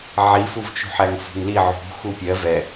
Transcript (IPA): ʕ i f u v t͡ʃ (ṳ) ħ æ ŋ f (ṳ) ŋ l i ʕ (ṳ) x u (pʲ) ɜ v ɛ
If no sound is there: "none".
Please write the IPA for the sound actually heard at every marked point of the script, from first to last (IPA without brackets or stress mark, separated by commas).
ṳ, ṳ, ṳ, pʲ